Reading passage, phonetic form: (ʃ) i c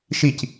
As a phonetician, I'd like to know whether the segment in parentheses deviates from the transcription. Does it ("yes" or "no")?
no